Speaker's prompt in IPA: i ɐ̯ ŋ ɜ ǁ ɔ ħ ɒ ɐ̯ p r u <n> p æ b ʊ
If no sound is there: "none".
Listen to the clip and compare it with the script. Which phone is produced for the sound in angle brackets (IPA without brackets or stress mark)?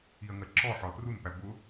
n